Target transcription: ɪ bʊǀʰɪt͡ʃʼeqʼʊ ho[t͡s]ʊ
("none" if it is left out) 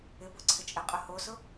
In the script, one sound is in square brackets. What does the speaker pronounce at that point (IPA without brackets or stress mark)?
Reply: s